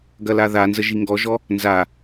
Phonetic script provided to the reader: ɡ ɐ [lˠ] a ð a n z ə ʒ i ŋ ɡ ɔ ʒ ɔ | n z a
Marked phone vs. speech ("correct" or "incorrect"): incorrect